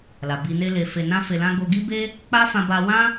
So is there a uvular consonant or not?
no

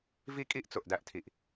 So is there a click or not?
no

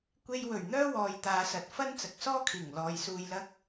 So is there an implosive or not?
no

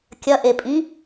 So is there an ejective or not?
yes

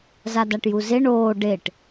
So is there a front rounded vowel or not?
no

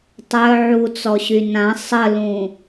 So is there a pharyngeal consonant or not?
yes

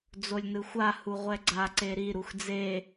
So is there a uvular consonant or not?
yes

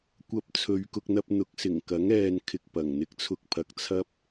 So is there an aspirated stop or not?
yes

